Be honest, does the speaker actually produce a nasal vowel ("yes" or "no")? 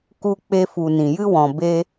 yes